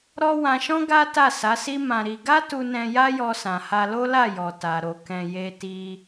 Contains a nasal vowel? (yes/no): yes